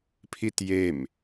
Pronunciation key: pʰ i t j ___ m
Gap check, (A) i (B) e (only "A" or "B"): B